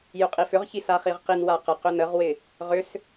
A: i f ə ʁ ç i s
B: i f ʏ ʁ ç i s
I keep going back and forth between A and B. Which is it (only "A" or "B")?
B